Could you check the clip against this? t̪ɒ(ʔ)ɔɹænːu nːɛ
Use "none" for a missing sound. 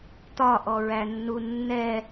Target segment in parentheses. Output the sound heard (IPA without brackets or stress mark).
ʔ